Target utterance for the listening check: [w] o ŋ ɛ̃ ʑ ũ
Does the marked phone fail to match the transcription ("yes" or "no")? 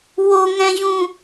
no